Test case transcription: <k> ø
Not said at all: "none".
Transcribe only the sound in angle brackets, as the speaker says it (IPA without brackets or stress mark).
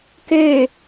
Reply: k